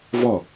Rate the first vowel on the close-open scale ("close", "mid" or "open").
mid